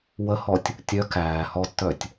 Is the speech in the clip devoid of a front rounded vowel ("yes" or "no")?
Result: no